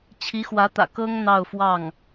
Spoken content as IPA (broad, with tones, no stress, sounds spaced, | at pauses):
t͡ɕʰ i˧˥ x w ä˧˥ t̪ ä̰˨˩ k ɤ˥ ŋ n̪ ɑ˥˧ ʊ̯ f w ɑ˥˩ ŋ